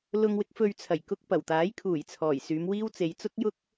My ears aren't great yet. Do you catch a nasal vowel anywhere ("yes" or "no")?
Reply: no